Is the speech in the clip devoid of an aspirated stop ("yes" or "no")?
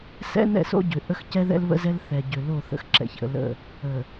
yes